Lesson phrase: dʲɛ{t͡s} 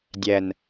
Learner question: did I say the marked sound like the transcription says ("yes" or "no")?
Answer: no